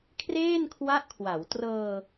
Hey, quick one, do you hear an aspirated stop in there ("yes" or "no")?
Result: yes